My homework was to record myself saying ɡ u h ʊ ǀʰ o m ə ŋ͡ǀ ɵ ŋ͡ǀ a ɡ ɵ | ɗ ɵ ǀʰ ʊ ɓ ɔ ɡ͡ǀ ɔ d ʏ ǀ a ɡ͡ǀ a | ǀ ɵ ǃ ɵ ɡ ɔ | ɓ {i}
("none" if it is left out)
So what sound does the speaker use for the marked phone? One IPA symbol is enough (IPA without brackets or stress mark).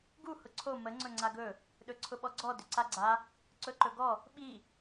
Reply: i